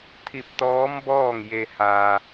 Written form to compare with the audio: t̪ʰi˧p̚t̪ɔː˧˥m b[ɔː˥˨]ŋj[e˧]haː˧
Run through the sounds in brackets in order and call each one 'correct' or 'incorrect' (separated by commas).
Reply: correct, correct